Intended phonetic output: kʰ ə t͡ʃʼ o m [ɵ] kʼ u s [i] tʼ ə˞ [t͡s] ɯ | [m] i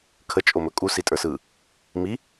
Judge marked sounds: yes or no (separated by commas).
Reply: yes, yes, no, yes